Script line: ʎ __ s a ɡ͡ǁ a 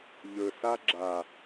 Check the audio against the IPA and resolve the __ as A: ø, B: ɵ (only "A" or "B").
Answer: B